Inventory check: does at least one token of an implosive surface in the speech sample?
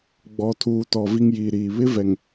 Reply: no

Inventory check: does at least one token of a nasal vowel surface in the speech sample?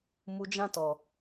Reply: yes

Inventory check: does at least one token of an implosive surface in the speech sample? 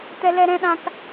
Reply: yes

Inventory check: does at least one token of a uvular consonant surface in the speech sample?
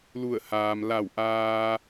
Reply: no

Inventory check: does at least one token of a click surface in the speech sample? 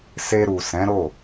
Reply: no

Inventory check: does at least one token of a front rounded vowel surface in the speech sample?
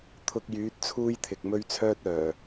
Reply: yes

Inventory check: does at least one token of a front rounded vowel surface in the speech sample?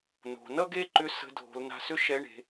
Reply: yes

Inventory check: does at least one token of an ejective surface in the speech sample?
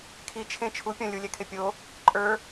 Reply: yes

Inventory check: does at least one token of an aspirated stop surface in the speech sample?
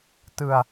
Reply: no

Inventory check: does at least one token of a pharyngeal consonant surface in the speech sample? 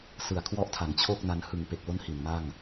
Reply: no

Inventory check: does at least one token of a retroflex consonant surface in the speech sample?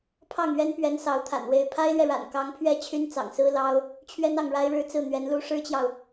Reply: yes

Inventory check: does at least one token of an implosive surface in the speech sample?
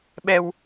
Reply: yes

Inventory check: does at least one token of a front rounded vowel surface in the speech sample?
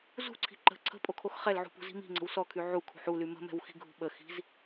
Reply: yes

